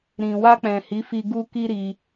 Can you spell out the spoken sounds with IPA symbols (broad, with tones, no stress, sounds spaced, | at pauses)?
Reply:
ɾ ĩ˨ w a˧ k͡p ɛ̃˨ h i˨˦ f i˧ ɡ u˦ k i˦ ɾ i˧